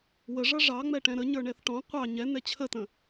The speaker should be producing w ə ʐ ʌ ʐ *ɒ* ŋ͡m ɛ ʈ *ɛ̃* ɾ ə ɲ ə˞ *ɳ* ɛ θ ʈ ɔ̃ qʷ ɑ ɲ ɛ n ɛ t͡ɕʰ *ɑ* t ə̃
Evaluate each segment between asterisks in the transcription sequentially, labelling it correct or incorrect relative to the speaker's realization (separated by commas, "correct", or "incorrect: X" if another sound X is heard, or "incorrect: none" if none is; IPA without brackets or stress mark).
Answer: incorrect: ɑ, correct, correct, incorrect: ə